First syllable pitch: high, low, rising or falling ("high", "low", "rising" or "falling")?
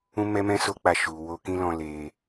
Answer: high